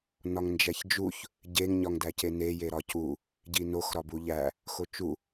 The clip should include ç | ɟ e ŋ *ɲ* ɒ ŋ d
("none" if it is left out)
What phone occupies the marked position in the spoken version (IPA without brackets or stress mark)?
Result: ɲ